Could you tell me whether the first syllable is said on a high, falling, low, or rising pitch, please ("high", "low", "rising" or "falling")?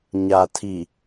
low